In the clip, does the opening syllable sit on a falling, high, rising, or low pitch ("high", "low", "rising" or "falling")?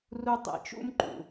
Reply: high